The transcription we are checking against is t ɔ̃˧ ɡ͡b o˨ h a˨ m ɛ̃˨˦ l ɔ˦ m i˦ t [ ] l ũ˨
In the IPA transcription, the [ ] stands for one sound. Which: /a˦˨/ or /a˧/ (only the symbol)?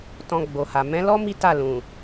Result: a˦˨